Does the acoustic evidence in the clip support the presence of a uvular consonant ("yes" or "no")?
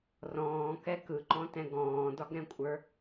no